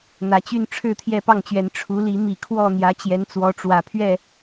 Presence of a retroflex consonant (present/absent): present